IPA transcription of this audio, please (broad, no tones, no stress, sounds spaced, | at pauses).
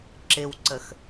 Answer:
ǁ ɪ w ǀ ə x